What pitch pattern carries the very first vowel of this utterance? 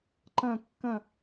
falling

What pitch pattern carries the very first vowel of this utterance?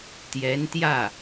rising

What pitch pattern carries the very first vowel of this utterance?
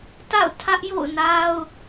falling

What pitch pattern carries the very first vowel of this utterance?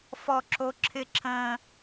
high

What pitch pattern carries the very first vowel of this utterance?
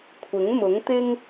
rising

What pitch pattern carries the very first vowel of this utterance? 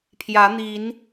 rising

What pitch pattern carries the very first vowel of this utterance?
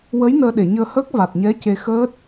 rising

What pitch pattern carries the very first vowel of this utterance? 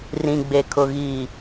low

